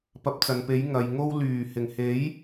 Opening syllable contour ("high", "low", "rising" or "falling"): rising